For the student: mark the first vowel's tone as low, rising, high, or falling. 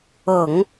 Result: low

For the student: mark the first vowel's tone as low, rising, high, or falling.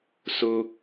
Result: low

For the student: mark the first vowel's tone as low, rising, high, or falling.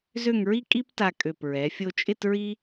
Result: falling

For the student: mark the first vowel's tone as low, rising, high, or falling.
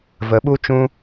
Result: rising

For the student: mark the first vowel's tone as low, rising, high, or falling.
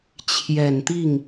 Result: low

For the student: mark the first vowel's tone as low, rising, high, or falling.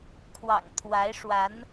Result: low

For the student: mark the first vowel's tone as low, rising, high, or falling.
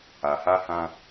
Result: low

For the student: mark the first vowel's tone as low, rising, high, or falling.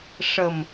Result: low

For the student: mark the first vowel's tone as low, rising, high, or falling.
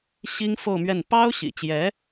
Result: high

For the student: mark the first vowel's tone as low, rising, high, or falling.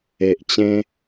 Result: low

